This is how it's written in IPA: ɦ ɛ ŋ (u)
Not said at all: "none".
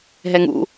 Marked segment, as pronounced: ṵ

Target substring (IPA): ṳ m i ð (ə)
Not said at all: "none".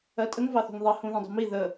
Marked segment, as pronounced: ə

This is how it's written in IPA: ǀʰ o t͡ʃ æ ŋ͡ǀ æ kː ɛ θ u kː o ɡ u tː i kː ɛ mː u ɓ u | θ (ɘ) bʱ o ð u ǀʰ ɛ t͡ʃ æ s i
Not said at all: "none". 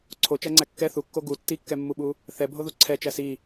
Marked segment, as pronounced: ɛ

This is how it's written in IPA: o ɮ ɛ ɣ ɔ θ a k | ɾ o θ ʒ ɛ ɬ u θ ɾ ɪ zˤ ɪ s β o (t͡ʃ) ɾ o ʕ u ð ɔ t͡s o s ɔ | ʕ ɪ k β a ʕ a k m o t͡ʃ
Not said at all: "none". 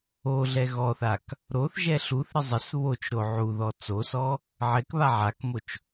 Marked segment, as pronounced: t͡ʃ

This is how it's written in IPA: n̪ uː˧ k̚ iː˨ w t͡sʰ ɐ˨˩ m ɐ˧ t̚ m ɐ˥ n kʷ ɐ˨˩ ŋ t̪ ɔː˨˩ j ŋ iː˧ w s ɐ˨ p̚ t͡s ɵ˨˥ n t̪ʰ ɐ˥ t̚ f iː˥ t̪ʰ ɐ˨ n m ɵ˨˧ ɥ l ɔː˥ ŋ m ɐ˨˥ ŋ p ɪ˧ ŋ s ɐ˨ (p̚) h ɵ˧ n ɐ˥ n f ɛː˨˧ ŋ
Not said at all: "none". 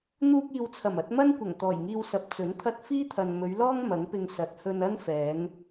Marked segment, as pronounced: t̚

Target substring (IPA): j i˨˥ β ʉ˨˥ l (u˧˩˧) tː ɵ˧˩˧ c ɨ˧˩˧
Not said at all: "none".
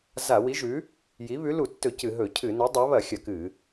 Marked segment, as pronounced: u˧˩˧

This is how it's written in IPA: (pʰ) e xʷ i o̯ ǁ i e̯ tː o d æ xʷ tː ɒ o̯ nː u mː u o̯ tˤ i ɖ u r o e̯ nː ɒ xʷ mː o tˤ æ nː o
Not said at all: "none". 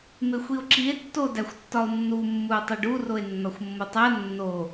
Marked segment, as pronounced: m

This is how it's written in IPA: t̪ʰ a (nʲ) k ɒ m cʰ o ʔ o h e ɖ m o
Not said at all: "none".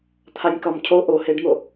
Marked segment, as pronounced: nʲ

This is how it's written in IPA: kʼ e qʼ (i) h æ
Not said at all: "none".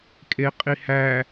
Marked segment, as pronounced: i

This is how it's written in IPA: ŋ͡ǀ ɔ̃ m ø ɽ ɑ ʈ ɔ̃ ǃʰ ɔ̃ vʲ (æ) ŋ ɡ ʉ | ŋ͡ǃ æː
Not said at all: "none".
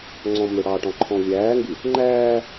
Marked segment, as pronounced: æː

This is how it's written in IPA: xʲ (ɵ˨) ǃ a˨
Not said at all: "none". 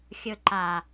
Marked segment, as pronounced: ɵ˨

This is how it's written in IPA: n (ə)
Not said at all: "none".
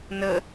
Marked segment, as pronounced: ə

